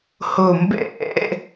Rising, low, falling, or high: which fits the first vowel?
low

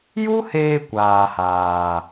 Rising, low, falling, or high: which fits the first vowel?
high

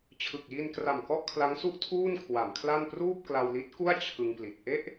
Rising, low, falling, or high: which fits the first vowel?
low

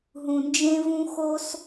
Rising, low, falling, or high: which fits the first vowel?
low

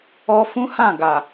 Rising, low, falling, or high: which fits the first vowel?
high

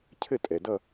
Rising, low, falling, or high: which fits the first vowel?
falling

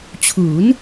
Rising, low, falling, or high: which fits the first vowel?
rising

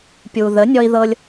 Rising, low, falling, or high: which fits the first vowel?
low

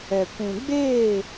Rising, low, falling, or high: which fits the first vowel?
low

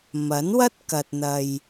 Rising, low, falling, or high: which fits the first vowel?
rising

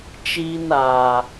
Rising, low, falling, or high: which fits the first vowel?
high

